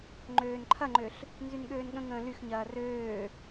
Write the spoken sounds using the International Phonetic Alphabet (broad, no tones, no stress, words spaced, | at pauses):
ŋ͡ǃøːnǃʰɐŋ͡ǃøɬ | nzynɠøːnɠə̃ŋə̃ː lyxɲɐː røː